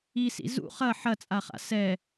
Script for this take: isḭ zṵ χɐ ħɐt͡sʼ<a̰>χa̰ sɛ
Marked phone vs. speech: incorrect: a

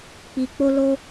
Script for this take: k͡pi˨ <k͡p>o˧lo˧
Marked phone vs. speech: correct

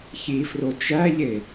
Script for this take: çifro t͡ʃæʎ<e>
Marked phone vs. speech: correct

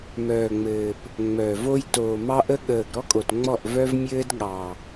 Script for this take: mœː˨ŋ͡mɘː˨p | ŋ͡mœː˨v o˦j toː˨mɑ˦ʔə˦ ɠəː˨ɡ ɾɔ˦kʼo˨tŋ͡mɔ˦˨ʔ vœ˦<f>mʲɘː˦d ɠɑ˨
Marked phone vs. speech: incorrect: v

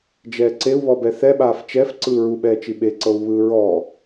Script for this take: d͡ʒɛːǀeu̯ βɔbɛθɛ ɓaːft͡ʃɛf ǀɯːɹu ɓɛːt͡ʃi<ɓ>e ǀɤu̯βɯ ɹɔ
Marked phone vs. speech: correct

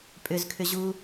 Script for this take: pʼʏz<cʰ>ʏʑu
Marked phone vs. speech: incorrect: kʰ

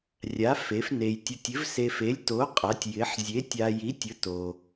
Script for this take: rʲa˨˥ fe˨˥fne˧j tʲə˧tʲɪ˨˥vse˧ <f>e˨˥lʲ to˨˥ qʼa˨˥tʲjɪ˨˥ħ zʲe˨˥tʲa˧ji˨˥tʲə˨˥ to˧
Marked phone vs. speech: correct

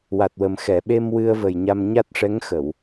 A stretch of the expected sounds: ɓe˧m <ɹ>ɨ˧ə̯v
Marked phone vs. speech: incorrect: w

